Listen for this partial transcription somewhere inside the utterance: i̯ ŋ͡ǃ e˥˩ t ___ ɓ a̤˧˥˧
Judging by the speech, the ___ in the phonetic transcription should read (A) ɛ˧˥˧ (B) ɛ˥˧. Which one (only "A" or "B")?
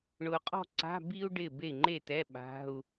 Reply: A